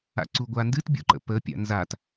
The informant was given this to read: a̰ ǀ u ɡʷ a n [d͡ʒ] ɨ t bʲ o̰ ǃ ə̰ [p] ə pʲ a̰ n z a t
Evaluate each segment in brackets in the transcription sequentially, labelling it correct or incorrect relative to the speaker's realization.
incorrect, correct

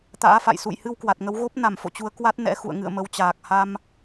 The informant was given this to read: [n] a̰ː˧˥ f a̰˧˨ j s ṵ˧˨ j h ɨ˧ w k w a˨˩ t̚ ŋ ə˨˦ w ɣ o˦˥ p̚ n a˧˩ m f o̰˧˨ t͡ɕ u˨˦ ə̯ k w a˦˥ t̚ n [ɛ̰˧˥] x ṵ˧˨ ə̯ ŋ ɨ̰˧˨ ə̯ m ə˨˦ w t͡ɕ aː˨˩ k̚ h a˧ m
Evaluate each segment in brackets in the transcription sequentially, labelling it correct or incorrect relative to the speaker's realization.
incorrect, correct

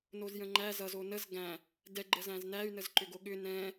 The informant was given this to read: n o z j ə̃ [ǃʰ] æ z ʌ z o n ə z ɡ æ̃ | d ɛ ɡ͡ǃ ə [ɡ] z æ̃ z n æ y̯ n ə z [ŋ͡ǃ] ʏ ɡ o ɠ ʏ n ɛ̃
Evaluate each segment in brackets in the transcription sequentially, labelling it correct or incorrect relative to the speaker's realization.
incorrect, incorrect, incorrect

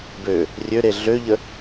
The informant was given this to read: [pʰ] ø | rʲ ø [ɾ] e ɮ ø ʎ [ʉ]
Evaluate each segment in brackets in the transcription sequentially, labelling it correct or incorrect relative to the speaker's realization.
incorrect, correct, incorrect

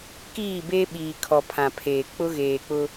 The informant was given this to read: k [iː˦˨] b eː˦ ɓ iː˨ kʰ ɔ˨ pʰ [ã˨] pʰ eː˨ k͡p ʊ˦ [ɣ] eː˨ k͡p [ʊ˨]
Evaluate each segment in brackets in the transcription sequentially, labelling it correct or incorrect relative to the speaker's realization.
correct, correct, correct, incorrect

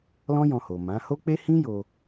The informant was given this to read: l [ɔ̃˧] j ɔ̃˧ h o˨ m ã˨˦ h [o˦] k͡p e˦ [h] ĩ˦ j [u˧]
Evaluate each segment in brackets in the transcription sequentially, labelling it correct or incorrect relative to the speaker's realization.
incorrect, correct, correct, incorrect

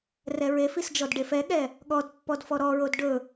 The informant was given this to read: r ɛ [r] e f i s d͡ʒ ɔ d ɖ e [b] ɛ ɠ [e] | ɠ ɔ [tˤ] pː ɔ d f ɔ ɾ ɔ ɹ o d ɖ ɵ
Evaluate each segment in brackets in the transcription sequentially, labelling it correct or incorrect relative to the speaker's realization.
incorrect, incorrect, incorrect, incorrect

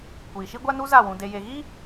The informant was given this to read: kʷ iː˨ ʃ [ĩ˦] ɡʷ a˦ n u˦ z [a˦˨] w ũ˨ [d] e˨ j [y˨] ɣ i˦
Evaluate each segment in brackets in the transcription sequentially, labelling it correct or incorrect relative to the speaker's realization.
incorrect, correct, correct, incorrect

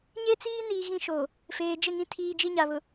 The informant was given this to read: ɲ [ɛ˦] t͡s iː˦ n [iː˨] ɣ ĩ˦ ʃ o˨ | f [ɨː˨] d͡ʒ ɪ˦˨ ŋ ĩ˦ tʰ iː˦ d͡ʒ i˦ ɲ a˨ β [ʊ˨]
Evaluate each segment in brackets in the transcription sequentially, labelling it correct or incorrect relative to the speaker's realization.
incorrect, correct, incorrect, correct

